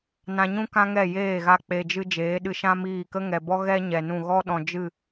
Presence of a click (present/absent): absent